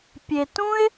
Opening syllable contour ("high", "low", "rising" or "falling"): low